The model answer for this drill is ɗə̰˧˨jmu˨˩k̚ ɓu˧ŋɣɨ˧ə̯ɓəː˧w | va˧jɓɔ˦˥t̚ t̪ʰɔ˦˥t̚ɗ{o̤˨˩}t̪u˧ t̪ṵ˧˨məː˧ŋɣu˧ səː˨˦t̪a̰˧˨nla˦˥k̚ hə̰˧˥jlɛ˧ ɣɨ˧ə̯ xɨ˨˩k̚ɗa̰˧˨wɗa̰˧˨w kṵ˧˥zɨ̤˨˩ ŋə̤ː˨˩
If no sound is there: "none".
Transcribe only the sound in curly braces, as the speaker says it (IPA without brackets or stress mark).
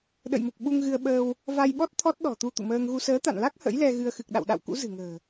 ɔ̤˨˩